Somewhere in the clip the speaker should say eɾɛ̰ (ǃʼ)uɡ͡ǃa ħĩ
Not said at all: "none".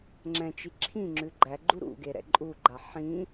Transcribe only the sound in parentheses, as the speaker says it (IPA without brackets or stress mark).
ǃʼ